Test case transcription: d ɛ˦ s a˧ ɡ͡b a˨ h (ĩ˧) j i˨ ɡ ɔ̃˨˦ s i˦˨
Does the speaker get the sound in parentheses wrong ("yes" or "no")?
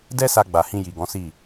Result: no